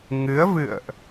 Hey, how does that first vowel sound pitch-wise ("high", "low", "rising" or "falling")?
rising